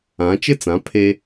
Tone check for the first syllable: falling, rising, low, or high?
rising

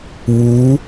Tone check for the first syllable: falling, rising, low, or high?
rising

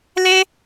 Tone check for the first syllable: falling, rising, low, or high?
high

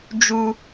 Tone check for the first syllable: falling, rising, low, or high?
high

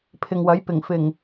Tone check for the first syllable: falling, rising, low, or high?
low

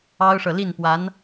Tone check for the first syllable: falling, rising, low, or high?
high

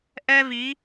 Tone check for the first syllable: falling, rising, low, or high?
high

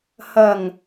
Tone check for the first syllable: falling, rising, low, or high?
low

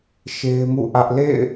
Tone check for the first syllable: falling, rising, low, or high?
high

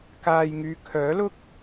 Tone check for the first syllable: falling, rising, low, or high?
low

